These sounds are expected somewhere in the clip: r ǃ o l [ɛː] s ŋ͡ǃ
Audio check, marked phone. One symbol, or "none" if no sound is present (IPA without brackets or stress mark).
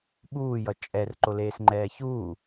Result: eː